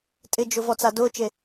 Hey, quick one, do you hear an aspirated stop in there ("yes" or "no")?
no